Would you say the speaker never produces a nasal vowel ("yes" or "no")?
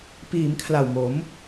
yes